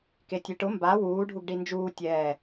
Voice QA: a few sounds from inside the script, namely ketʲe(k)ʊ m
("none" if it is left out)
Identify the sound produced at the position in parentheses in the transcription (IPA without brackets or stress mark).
ʈ